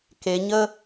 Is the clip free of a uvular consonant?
yes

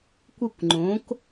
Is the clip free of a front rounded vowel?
yes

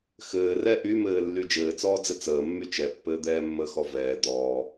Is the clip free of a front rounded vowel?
no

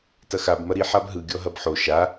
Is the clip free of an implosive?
yes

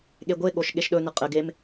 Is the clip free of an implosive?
no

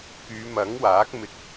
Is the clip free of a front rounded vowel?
no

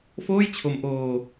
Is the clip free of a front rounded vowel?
yes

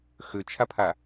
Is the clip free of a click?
yes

